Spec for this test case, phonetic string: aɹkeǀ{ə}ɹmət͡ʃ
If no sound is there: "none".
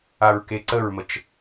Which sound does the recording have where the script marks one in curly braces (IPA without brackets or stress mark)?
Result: ə